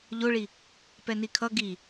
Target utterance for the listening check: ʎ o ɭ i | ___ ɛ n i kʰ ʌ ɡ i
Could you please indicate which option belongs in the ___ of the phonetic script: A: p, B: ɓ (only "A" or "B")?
A